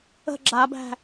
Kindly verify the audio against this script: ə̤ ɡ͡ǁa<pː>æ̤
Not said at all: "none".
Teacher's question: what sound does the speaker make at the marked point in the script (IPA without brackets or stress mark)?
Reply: b